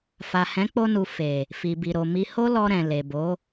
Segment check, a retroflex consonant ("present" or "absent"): absent